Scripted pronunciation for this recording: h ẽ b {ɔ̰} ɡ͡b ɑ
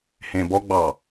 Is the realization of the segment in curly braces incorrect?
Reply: yes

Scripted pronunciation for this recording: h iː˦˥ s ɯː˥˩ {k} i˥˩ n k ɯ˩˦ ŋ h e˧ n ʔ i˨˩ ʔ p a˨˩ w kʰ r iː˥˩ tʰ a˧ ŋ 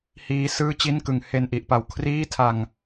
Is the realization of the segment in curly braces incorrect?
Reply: yes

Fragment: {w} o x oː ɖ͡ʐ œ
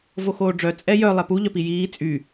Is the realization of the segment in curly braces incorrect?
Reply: yes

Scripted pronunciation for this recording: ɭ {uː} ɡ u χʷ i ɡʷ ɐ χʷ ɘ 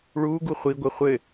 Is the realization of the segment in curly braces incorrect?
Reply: no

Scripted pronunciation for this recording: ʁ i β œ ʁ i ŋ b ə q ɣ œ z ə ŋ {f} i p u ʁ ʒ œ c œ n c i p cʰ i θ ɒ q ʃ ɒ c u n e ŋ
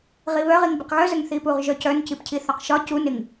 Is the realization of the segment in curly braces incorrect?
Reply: yes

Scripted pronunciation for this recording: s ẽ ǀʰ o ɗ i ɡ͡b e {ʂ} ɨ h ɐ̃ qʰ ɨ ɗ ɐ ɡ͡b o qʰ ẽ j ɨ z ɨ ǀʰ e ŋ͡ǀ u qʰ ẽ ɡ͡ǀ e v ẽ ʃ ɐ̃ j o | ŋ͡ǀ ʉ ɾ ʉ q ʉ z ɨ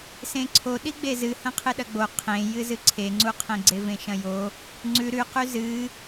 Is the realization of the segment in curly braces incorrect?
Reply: yes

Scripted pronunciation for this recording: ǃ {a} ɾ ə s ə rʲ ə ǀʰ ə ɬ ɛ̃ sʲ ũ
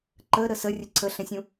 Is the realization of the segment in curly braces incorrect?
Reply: yes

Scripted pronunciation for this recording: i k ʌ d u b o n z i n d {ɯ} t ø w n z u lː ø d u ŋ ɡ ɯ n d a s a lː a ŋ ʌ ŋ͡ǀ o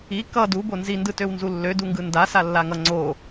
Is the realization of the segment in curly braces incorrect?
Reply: no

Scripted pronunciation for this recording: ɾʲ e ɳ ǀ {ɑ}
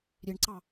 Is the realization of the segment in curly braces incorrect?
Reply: no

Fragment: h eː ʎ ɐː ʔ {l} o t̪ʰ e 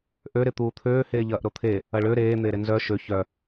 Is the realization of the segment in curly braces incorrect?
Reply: yes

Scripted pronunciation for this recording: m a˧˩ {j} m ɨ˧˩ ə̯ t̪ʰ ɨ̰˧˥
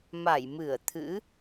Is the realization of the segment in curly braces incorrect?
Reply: no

